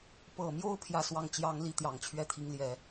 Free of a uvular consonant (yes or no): yes